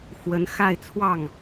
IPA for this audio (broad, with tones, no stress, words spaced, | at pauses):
xwə˧˥n xa˥˧ɪ̯ t͡sʰwɑ˥˩ŋ